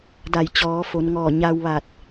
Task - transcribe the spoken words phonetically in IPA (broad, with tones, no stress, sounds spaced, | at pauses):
d a˧˩ j t͡ɕ ɔː˩˧ f o˩˧ n ŋ ɔː˧˩ ɲ a˧ w ʋ a˧˩ t̚